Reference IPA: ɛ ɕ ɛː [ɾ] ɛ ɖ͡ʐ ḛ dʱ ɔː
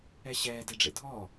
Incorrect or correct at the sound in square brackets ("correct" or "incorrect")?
incorrect